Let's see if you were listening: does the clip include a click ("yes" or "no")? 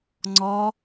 yes